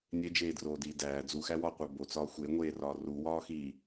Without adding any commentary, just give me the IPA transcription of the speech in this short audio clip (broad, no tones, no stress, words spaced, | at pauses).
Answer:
nʲed͡ʒeːdroːdiː dæː d͡zuxæwɒːqʷæ bot͡sɒː xʷeŋʷeːrɒː ruwɒː xi